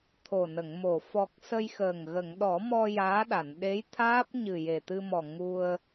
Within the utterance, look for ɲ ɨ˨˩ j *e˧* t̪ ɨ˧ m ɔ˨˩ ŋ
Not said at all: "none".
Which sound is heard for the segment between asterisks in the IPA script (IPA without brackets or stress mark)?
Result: e˨˩